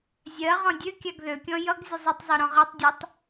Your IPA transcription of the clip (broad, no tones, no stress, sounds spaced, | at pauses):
zʲ ɜ ʁ ɔ̃ dʲ ø kʲ a ɡ ð ø kʲ ɔ̃ j ʌ ɡ zʲ ə zˤ ø tˤ zˤ ø ɾ ɔ̃ ʁ ɜ tˤ dʲ ɔ tˤ